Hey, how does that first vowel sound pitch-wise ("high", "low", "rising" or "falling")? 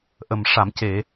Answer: low